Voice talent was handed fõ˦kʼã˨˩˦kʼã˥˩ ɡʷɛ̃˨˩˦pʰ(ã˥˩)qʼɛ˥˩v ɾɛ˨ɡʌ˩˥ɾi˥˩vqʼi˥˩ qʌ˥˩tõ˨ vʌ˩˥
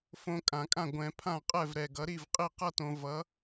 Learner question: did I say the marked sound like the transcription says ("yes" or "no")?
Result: yes